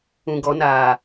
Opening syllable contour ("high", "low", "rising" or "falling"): low